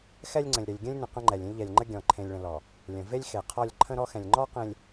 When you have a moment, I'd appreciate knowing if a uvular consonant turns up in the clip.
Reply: yes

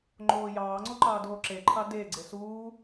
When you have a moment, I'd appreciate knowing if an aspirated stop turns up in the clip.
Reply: yes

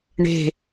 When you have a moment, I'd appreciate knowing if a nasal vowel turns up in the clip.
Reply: no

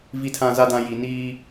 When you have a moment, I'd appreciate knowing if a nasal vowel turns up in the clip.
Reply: yes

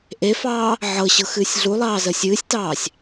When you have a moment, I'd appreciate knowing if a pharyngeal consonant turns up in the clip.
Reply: yes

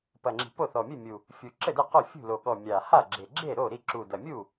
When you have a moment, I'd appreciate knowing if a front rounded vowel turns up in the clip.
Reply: no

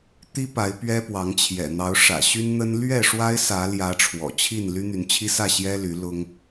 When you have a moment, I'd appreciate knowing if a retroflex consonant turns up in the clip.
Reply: yes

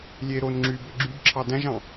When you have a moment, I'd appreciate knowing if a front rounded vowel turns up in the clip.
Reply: yes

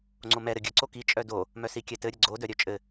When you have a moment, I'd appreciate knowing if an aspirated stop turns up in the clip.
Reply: no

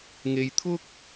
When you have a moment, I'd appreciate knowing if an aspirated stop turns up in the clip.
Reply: yes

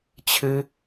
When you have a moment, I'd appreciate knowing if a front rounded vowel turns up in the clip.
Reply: no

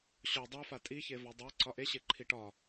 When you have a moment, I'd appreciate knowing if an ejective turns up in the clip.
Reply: yes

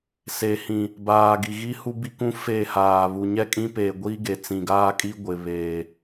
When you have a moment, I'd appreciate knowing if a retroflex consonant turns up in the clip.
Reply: no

